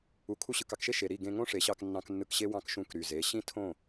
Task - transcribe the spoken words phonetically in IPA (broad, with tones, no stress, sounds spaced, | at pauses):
u˨ kʰ u˧ ɕ ɯ˨ k ɑ˧ k ʃ e˦ ʃ e˨ ɾ i˦˨ ɡ ẽ˧ ŋ õ˦ ʂ e˨˦ ɕ ɑ˧ k nː ɑ̃˧ k nː ɯ˧ k ɕ e˦ w ɑ̃˧ k ʃ ũ˧ k ɾ y˨ z e˨˦ ɕ ĩ˦ tʰ õ˦˨